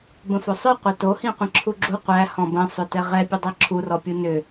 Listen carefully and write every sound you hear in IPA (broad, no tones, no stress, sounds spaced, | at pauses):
b ə̃ f o sˤ œ qʷ æ t o h ĩ qʷ ĩ ǁʰ u ɡ͡ǁ u qʷ æ h ɔ̃ b ə̃ sˤ ʏ t ɛ ʁ ɛ pʲ ə dˤ ɛ ǁʰ u r ɔ pʲ u n ʏ